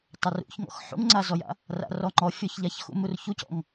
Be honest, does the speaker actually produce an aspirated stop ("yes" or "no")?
no